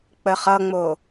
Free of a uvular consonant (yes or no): no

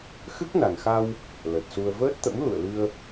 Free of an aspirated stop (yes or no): yes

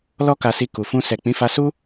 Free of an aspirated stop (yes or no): yes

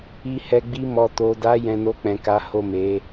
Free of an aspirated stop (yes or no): yes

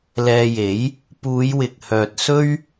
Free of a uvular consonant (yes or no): yes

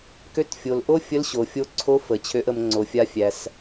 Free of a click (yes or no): no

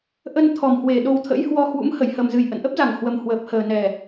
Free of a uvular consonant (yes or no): yes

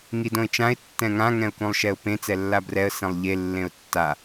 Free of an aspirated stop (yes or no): yes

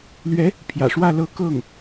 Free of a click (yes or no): yes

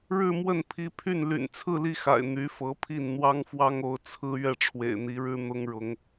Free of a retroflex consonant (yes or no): no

